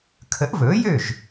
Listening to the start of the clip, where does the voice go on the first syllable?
rising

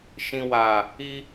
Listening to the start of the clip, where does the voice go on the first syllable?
low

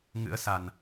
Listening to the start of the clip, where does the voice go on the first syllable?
rising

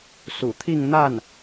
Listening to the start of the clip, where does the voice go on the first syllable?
low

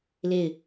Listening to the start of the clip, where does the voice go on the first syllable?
falling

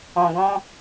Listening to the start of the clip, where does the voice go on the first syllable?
low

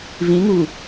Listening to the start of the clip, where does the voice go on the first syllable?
rising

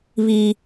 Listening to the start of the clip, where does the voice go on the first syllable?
low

